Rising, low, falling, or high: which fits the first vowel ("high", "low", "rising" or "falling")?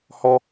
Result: high